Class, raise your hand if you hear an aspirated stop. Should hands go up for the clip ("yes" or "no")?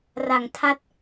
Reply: yes